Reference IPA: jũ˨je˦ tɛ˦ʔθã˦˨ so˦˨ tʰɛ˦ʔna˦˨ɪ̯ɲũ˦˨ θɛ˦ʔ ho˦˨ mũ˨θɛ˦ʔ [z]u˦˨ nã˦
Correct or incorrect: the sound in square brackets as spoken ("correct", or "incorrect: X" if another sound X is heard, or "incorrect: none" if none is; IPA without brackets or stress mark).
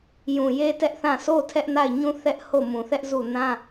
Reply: correct